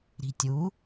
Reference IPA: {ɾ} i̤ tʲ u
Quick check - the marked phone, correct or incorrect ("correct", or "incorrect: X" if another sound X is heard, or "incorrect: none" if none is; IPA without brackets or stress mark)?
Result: correct